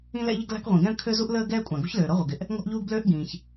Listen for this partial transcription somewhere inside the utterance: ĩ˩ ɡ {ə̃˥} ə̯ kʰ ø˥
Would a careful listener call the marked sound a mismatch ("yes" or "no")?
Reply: yes